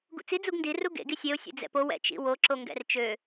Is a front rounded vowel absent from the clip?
no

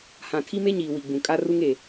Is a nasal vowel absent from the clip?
no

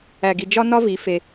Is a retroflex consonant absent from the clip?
yes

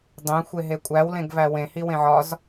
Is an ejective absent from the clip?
no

